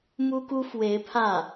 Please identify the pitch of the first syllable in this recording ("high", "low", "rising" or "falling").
high